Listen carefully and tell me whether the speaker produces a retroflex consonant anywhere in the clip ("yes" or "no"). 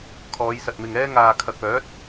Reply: no